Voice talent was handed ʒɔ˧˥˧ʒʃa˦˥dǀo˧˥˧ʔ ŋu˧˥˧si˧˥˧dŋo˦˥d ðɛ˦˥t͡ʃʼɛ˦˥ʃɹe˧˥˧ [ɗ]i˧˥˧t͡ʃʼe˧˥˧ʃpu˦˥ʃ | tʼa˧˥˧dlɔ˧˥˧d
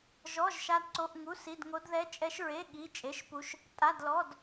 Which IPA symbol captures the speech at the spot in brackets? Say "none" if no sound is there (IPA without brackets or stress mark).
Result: ɠ